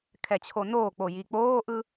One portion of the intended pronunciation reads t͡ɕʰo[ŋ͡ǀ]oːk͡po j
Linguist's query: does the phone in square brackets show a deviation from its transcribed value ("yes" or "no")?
yes